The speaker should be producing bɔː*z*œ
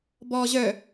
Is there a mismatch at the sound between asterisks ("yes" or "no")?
yes